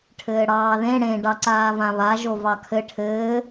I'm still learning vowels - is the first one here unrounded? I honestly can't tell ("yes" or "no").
yes